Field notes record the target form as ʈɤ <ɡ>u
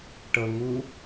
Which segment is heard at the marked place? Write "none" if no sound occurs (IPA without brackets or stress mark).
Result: ŋ